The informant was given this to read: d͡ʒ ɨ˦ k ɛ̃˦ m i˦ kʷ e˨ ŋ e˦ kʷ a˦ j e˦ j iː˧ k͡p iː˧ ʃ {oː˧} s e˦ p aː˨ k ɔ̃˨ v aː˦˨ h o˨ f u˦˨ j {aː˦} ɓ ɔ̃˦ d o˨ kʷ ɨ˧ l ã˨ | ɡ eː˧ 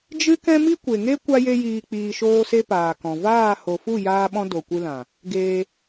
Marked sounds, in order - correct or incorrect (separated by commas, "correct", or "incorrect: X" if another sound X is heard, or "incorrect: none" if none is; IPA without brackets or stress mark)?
incorrect: oː˦, correct